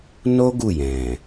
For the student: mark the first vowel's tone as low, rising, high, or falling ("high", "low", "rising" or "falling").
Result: high